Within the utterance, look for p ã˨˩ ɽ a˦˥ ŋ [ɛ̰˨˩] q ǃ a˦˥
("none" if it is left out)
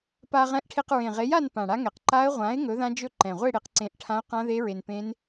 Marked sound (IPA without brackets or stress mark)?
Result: ɛ˨˩